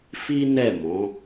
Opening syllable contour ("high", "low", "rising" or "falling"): high